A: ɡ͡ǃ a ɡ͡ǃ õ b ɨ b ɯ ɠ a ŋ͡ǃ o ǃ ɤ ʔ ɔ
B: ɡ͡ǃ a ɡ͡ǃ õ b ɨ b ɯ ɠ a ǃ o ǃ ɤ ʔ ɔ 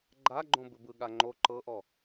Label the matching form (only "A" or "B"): A